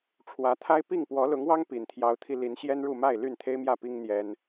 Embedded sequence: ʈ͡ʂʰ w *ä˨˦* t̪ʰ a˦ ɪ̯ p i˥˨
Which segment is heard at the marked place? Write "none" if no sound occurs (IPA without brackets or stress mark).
ä˨˦